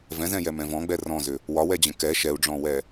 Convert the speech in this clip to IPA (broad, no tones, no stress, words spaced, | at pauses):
vɛ̃zɛ̃jɛmɛ̃ vɔ̃ɡ͡bɛ rɔ̃zʏ | wɒwɛd͡ʑə̃ kɛ ʃɛu̯ɖ͡ʐɔ̃wɛ